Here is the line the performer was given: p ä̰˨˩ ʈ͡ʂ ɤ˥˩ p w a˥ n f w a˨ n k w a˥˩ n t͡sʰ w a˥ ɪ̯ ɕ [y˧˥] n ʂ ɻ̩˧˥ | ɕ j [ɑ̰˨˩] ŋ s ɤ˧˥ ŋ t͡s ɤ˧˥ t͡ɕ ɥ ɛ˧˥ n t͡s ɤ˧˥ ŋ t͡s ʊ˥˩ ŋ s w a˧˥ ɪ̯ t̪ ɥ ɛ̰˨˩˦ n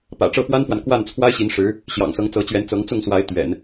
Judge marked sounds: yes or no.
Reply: no, yes

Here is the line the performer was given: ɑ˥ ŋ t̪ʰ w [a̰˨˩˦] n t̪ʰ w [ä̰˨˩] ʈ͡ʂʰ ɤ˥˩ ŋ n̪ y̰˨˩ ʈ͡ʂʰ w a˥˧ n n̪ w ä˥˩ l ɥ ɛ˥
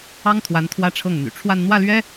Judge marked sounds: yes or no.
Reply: no, no

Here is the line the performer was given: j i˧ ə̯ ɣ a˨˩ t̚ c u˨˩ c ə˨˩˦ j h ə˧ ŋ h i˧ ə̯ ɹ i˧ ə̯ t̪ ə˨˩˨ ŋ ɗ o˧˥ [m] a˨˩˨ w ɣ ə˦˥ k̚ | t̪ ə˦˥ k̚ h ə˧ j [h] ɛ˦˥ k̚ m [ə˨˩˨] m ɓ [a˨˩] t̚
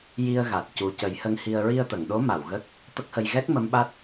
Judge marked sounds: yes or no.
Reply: yes, no, no, no

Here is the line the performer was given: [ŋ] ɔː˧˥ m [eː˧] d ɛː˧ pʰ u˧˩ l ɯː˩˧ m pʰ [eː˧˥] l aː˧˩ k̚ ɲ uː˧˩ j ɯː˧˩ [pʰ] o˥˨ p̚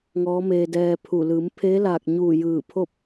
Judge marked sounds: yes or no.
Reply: yes, yes, yes, yes

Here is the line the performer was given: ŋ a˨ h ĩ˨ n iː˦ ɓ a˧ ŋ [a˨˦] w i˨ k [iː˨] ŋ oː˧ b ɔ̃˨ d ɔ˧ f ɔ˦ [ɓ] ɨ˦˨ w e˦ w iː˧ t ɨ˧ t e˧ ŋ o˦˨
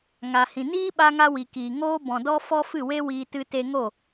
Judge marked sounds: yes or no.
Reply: no, yes, no

